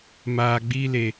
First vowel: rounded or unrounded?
unrounded